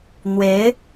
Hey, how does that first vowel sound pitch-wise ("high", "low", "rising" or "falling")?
rising